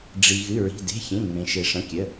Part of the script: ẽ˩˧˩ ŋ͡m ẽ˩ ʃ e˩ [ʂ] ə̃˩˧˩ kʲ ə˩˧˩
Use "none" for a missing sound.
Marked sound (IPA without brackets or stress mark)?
ʂ